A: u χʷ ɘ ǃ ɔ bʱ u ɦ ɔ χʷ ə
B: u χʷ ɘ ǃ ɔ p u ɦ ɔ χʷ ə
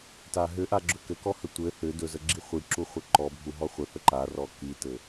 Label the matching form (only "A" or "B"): A